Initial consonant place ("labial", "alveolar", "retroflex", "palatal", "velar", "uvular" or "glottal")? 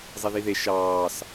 alveolar